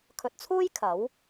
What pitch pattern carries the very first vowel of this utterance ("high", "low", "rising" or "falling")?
low